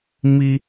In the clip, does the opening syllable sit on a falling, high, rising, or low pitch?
high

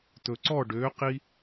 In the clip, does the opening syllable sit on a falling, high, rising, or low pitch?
low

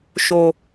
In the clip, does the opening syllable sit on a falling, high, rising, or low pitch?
low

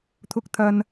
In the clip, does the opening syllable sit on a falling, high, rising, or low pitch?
high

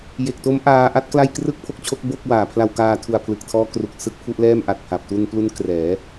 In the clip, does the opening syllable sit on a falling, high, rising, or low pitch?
low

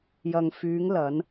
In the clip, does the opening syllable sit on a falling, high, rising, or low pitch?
low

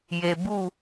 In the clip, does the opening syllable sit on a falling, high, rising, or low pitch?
low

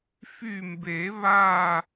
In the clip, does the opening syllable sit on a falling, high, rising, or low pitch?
falling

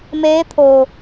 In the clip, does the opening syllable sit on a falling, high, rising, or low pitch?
rising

